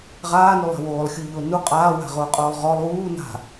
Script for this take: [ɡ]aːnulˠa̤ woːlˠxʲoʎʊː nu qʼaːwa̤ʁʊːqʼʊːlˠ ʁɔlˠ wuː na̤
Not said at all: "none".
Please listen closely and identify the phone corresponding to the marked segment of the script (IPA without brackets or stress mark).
ʁ